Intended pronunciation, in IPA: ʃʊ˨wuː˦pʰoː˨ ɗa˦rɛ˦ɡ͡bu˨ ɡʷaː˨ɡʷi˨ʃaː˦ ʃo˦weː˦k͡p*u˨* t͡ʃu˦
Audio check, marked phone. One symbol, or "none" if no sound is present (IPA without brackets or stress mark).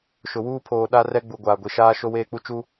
u˦